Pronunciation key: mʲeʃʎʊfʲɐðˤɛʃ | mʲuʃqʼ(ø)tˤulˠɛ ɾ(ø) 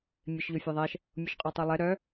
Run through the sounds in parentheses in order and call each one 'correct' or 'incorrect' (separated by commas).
correct, incorrect